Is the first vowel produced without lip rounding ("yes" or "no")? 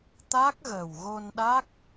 yes